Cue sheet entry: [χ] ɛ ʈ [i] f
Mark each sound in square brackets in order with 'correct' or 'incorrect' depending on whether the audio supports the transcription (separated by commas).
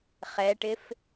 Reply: correct, incorrect